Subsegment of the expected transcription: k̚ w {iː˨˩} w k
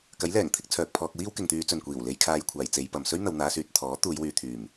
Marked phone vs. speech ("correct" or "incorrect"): incorrect